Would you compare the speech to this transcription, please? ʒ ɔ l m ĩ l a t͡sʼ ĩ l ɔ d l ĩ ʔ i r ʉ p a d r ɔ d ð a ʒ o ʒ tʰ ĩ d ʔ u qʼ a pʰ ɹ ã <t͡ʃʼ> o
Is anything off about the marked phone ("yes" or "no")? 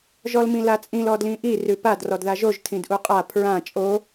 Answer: no